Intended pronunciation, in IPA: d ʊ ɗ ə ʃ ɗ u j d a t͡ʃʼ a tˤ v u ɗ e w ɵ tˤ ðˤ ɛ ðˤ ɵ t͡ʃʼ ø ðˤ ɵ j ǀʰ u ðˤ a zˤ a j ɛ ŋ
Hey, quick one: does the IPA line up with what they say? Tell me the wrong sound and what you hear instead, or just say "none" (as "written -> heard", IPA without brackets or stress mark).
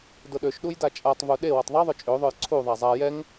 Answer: ə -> ø